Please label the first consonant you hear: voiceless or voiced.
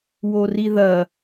voiced